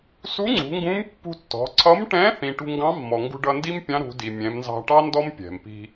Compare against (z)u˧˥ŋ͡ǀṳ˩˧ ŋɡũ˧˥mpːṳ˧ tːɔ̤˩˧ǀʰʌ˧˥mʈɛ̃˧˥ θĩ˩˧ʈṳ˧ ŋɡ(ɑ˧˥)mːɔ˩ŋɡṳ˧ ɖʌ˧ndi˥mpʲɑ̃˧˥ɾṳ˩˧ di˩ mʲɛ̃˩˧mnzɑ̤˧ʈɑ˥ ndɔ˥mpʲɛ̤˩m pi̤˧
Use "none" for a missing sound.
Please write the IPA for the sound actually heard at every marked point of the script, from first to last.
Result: s, ɑ̃˧˥

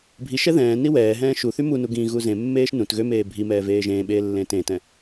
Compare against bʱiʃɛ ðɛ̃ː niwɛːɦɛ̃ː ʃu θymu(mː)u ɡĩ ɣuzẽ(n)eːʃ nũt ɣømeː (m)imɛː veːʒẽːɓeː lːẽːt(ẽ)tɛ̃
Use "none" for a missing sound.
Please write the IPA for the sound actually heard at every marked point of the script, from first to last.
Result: n, mː, bʱ, ẽː

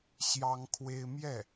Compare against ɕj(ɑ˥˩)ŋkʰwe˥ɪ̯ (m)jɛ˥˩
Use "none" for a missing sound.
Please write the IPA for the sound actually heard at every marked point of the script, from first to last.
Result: ɑ˥, m

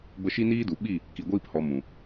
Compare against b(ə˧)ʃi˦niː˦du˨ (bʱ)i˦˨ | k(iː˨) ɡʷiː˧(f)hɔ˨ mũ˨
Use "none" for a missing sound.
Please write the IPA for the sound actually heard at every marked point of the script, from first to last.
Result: ə˧, ɓ, i˨, p

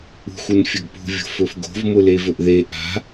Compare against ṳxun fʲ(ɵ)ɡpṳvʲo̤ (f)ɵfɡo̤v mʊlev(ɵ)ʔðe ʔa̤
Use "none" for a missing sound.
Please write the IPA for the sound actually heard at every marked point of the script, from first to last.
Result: ɵ, f, ɵ

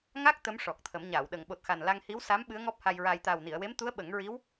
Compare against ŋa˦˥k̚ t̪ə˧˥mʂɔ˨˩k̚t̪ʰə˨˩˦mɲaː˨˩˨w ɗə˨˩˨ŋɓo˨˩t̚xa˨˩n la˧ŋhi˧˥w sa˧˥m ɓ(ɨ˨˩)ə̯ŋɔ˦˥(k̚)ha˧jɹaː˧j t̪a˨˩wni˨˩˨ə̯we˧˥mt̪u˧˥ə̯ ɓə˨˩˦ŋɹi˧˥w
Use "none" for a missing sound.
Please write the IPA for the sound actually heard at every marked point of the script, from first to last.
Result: ɨ˧˥, p̚

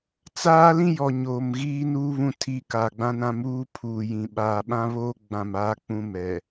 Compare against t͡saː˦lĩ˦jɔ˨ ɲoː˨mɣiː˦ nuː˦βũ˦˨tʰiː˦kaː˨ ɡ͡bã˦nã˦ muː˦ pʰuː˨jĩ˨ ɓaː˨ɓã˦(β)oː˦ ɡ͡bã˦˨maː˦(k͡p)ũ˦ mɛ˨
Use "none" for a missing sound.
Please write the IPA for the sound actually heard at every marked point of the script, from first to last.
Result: β, k͡p

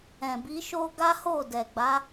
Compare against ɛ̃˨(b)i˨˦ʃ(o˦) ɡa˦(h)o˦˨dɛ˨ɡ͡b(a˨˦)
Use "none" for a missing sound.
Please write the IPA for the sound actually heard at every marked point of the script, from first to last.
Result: b, o˦, h, a˨˦

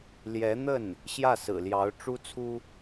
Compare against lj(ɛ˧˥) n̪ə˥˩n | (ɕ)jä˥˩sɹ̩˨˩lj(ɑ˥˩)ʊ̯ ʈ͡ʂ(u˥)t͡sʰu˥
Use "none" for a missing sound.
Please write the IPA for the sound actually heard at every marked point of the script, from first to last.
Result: ɛ˧˥, ɕ, ɑ˧˥, u˥

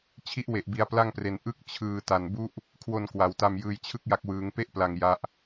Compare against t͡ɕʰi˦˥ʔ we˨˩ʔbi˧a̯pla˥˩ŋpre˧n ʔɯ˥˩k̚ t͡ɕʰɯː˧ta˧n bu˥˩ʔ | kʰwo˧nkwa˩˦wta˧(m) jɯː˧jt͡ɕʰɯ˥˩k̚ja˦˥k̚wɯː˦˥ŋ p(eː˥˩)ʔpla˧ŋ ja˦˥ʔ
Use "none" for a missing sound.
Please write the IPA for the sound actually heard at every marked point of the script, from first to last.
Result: m, e˥˩

